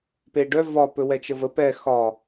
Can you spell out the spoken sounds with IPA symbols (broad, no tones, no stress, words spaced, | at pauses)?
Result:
peɖœ vɒ pɵwɛt͡ʃəvə pɛ xɒ